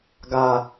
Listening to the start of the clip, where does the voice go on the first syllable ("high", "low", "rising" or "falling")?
high